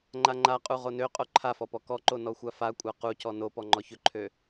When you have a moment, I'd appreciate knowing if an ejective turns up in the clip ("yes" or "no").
yes